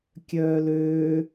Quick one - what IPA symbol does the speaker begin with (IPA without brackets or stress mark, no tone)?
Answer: kʲ